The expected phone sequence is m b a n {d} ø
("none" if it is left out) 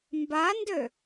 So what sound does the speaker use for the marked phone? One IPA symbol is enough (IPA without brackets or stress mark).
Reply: d